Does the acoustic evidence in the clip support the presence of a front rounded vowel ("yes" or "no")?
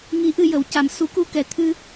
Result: no